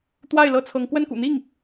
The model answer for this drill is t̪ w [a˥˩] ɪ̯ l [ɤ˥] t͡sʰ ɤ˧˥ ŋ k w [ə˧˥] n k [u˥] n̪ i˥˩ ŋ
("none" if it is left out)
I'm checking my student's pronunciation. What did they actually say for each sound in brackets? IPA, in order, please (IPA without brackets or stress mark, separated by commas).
a˥˩, ɤ˥, ə˥˩, ṵ˨˩